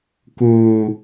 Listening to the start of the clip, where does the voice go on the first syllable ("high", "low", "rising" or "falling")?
low